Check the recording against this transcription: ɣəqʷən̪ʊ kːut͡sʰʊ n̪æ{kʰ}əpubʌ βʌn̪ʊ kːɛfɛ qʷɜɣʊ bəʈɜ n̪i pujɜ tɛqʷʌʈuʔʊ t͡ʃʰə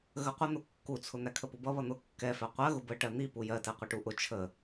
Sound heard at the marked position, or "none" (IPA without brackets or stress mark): kʰ